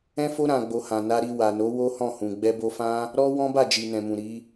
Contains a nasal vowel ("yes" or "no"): yes